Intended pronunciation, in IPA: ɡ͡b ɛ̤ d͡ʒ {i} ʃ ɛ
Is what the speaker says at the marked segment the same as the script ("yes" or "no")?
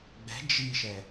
yes